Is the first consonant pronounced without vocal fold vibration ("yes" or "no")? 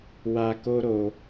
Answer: no